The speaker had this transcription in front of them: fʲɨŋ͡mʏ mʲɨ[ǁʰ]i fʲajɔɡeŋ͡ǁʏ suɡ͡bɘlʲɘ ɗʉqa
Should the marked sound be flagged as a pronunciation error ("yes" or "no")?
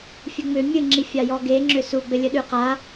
yes